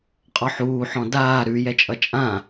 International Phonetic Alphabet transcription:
qʼ ɔ ħ uː ħ ɔ̃ d aː ɾ ʉ j ɛ t͡ʃʼ ʌ t͡ʃʼ ã

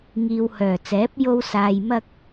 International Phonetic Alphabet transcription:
ŋ iː˨ w h œː˨˩ t͡s ɛː˨˥ p̚ j o˥ w s aː˧ j m ɐ˥ k̚

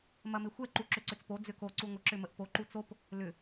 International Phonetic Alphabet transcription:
m ɐ m ɪ xʷ ɛ ǃ u ǁ ʏ ǀ ʏ t͡s p o d͡z ʏ k o ǀ u ŋʷ ə ǁ ʏ m ə ʔ p o ǃ u t͡s o p | l ʏ

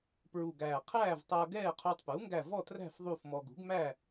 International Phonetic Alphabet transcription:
p ɹ u˨˩ ɡ æː˨˩ qʰ æː˥˨ v tˤ ʌː˧ ɡ ɛː˥˨ qʰ uː˧ tˤ p uː˩˥ ŋ ɡ æ˥˨ v ɔ˥˨ t r æ̤˥˨ f ðˤ u˥˨ f m ɔ˧ ɡ ṳ˩˥ ɡ m æ˥˨

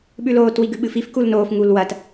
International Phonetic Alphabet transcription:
ɓ ʉ l oː t w i ɡ ʉ ɓ ɨ f i f k u l n oː f ŋ u l w ɐ t

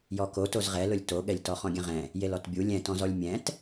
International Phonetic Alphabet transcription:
j ɔ k o t o z ʁ ɛ l ʊ lʲ t o ɠ ɛ lʲ t ɔ χ ɔ̃ ɡʲ ɛ̃ ʁ ɛ̃ | j e l ɔ t bʲ u lʲ ɛ̃ t ɔ̃ z ɔ lʲ mʲ ɛ̃ t

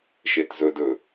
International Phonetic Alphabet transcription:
ʃ e t z ɵ d ɵ

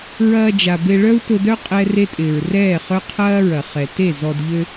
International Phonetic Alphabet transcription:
ɹ ɐː˧ d͡ʒ a˨ b e˧ ɭ œ˦ u̯ t ʊ˧ d œ˦ qʼ ɛ˦ r e˦ tʼ ɪː˨ ɹ r ɛː˦˨ χ œ˦ qʰ ɐː˦ ɹ ɐ˨ χ ɛ˨ t e˦˨ z ɔ˧ d ʎ ø˦

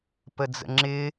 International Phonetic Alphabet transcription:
p ə d͡z ə̰ ŋ͡ǁ ɪ

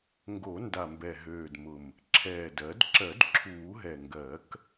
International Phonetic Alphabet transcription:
ŋ ɡ o˨˩˦ n d a˨˩ m b ɛ˨˩ ɦ øː˨˩ d m ʊ˨˩ m | ǁʰ ɛː˨˩ d ɜ˨˩˦ d ǁ ɜ˨˩˦ d ǁʰ uː˨˩˦ ɦ ɛ˨˩ ŋ ɡ ɜ˨˩˦ k

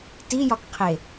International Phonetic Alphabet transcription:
t i j ɒ k qʰ e

